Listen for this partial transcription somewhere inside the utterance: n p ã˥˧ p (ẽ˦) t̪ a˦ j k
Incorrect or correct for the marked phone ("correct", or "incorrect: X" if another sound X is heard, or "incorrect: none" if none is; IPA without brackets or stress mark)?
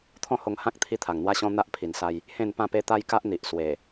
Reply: incorrect: e˦